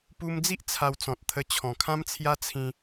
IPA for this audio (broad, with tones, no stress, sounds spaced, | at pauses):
p u˧ m d͡z i˦ ʔ t͡sʰ a˧ w t͡s ɔ̃˨ t̚ t̪ʰ ə˧ t͡ɕʰ ɔ̃˨˩ kʰ ã˦ m t͡sʰ j a˦ t͡sʰ ĩ˧